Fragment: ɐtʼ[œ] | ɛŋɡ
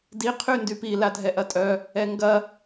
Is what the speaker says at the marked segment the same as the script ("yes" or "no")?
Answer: yes